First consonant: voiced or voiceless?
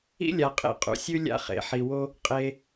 voiced